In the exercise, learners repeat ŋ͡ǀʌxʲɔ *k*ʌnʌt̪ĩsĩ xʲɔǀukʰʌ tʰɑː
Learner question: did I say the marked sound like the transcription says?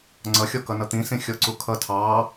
yes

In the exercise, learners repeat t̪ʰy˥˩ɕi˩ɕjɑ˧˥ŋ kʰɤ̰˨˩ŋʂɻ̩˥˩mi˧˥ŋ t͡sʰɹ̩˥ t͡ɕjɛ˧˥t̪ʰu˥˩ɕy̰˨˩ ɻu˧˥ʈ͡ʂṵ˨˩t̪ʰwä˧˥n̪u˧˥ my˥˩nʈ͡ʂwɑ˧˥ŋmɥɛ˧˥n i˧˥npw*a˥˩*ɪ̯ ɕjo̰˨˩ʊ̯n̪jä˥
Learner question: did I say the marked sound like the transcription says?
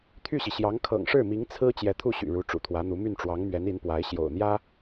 no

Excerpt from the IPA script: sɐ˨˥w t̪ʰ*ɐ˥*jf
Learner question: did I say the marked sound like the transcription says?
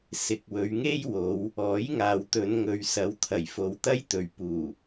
no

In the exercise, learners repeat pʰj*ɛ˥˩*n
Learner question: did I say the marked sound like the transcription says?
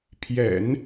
no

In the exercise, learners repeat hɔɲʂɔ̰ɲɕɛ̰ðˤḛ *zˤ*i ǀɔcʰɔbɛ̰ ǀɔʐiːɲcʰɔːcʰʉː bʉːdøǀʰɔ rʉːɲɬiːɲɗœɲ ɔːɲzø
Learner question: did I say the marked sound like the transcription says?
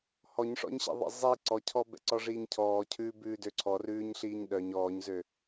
yes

